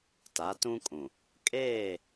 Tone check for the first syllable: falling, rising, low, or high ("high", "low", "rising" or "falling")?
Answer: rising